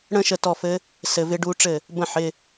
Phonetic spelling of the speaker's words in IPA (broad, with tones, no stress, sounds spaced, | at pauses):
ɽ ə̃˥˧ ʃ ə˧ t ɔ˥˩ f ɘ˦˥ | s ɘ˧ v ɪ˦˥ ɖ u˦˥ ʈ͡ʂ ɘ˥˩ | b ə̃˥˩ ħ ɪ˧˥˧